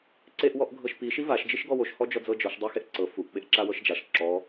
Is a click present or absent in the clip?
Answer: present